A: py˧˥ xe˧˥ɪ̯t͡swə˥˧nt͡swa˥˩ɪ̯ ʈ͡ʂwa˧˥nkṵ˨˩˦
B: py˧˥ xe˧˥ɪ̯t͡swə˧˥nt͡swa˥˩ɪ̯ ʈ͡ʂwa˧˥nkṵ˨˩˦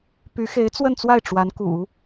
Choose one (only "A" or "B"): A